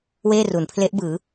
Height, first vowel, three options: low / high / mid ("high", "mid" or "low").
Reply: mid